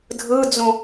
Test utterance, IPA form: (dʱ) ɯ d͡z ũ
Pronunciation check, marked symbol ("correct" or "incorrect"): correct